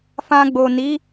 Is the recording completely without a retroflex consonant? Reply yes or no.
yes